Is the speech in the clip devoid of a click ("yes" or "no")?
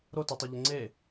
no